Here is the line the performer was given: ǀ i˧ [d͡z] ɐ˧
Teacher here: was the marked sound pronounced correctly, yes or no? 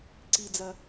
yes